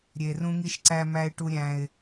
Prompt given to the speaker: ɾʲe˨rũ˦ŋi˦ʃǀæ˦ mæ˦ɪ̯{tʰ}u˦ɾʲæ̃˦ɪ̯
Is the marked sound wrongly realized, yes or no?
yes